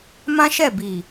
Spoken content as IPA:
m ã˦ ʃ ɛ˦˨ b i˨

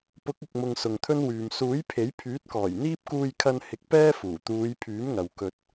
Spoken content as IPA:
p ʊ˨˥ k̚ ɪ˨ k̚ m ʊ˨ ŋ s ʊ˨ ŋ t̪ʰ ɵ˥ n w yː˨ m s uː˨˥ j pʰ e˨˥ j pʰ yː˨˥ t̚ k ɔː˨˩ j n̪ iː˥ p̚ k uː˧ j kʰ ɐ˧ n h ɪ˨˥ k̚ p ɛː˥ f uː˨˩ t̪ uː˨˧ j pʰ yː˨˥ m ŋ ɐ˨ w k ɵ˧ t̚

